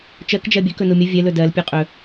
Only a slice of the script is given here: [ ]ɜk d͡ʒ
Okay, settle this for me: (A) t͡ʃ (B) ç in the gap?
A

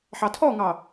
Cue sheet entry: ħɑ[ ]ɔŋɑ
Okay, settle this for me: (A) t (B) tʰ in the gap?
B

